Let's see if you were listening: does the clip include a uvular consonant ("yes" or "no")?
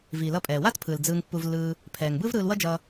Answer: no